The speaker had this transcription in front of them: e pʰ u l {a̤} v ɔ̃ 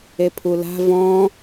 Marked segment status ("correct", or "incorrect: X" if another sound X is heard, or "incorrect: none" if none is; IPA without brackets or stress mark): correct